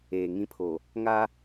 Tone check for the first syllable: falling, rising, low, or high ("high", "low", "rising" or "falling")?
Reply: low